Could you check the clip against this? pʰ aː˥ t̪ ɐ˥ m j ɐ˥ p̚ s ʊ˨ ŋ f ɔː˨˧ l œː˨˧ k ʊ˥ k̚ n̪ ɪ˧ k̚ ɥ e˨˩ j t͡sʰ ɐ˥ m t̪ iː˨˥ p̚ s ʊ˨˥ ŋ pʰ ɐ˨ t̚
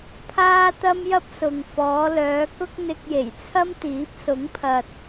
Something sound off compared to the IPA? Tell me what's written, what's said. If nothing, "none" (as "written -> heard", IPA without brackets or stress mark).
ɥ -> j